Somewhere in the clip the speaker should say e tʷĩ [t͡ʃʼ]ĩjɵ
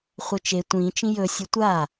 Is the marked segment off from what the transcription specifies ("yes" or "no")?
yes